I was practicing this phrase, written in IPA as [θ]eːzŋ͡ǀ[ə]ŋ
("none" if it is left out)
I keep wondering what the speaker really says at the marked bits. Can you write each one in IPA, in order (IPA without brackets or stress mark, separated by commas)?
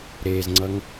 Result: ɾ, ʌ